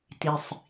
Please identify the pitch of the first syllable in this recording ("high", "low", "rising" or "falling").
low